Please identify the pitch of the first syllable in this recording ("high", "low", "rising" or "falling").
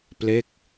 falling